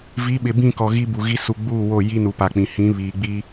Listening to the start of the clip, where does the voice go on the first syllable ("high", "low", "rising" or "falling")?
rising